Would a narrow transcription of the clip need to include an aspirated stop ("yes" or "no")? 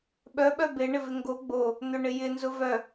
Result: no